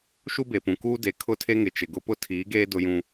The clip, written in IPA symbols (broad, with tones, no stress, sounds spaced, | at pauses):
ʃ u˦ b e˨ p ũ˨ k uː˦ d e˨ kʰ ʊ˦˨ tʰ e˦ ŋ ɪ˨ t͡ʃ ɪ˨ ɡ ʊ˦ p ʊ˦ tʰ iː˨˦ ɡ eː˦ d ʊ˦ j ũ˦